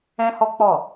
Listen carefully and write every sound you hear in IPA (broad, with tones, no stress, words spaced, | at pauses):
ɛ̃˦hɔ˦k͡pɔ˦˨